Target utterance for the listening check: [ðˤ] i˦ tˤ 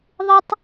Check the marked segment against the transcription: correct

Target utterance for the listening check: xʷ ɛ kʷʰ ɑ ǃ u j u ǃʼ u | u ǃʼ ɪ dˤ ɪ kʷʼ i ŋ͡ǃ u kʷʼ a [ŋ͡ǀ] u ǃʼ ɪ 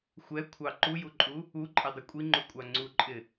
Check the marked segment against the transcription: correct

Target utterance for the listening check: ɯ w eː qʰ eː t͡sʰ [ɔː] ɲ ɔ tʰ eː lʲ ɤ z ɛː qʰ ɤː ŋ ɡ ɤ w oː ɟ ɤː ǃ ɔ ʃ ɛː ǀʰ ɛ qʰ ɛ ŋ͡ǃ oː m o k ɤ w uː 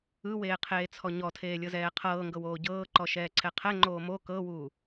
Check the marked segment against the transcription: incorrect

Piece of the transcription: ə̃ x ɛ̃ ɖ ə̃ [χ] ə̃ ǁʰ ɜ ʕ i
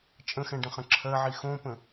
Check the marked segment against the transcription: correct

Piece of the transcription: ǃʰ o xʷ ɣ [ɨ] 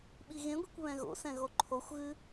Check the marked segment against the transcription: correct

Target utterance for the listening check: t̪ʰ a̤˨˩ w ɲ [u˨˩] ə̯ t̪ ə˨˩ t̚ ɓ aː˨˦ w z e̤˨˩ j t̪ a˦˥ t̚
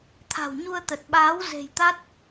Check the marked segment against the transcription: incorrect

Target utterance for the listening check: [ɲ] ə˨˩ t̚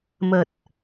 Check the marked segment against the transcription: incorrect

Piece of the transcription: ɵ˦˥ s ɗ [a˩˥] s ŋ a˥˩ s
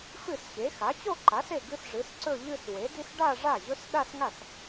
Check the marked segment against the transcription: incorrect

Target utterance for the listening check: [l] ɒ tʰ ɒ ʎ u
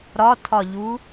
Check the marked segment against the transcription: incorrect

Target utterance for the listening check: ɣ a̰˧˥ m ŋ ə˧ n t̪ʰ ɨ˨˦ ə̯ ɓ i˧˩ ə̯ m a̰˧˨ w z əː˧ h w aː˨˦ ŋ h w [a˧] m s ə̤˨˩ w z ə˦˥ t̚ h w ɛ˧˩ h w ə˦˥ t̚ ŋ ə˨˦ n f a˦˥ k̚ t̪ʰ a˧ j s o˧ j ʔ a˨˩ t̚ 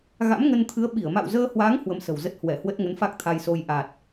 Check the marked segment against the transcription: incorrect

